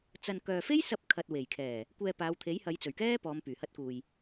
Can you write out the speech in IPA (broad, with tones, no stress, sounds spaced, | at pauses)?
t͡s ɐ˧ n k œː˨ f e˥ j s ɐ˧ p̚ kʰ ɐ˨ t̚ w e˨˩ j kʰ ɛː˨˩ | kʷ ɛː˧ p aː˨˧ w t̪ʰ e˨˥ j h ɐ˨˧ j t͡s ɵ˨˩ ɥ k ɛː˥ p ɔː˨˧ m p yː˨˩ h ɐ˧ t̚ k uː˨ j